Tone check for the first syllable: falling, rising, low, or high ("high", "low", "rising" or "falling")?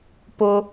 high